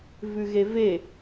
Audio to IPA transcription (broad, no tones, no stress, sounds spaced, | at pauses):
v ʉ ɣ e v e